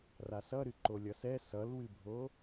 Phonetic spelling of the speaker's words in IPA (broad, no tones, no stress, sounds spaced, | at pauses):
r a s ʌ ɾ ɨ ǃ o lʲ ʌ s ɛ s ʌ l w ɨ bʱ o